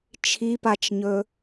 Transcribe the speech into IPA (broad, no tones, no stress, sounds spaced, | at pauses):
t͡ʃʰ i p a t͡ʃ ɲ ɵ